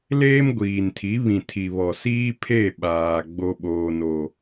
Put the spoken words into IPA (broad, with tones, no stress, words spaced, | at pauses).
leː˦mɡʷiː˨ntʰi˨˦ βĩ˨tʰi˨βɔ˨ siː˦pʰe˦˨ ɓaː˨ ɡ͡bo˦ɓoː˦no˦